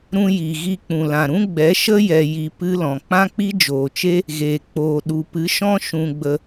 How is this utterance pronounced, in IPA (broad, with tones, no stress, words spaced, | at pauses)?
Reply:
ɾũ˦ji˨ ɣi˧k͡pũ˨lã˨ɾũ˦ ɡ͡bɛ˨˦ʃə˦ jɛ˧ji˧ pɨ˦lɔ̃˨ k͡pã˦k͡pi˦d͡ʒoː˨t͡ʃe˦ | ɣeː˨ k͡poː˨ ɗu˨pɨ˨˦ʃɔ̃˦ ʃũ˧ɡ͡bə˧